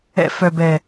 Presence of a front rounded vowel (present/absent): present